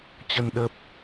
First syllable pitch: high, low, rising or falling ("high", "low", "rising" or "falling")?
low